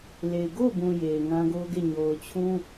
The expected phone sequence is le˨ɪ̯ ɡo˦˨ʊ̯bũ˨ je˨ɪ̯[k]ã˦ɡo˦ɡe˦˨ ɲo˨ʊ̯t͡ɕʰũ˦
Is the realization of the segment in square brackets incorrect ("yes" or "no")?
yes